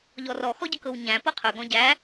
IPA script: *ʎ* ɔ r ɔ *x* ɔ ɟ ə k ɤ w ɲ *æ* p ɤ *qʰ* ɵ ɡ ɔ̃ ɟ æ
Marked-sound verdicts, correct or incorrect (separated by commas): correct, correct, incorrect, correct